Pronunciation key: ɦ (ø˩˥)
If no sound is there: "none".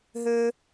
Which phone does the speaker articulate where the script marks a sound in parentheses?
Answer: ø˥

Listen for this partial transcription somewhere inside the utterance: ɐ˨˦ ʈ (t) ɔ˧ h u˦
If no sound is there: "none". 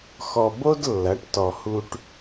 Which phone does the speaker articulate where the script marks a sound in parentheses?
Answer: t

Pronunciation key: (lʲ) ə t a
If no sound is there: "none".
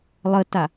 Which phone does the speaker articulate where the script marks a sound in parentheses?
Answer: lˠ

